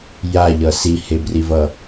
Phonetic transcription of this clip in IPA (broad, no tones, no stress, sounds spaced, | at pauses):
j a ʎ ʌ s i h e b r i v ʌ